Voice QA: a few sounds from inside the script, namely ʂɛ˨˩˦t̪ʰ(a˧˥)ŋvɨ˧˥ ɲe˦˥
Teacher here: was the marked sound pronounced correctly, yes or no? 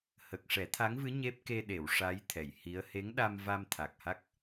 yes